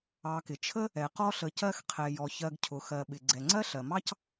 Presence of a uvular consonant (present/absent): present